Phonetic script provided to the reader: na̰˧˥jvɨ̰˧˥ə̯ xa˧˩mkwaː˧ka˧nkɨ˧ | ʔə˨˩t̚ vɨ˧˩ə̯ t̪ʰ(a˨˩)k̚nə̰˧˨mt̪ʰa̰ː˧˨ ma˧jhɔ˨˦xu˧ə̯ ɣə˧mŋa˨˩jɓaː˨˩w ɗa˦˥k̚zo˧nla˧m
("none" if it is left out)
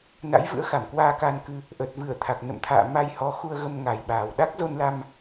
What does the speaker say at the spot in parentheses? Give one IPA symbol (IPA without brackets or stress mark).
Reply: a˨˩